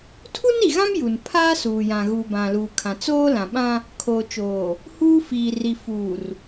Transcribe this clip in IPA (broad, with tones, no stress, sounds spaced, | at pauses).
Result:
tʰ u˦ n i˨ ɣ ã˦ m j u˨ n pʰ aː˦ s uː˨ j ã˨ ɣ uː˨ b ã˨ l uː˨ kʰ ã˨ t͡s oː˦ l ã˨ ɓ ã˦ | kʰ oː˨ t͡ʃ oː˨ | h uː˦ f iː˨ r i˨ f uː˨ r